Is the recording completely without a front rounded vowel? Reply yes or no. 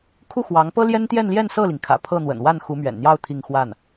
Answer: yes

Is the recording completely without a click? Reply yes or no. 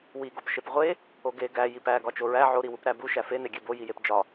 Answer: yes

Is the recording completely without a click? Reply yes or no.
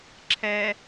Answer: no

